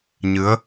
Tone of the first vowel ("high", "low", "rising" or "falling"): rising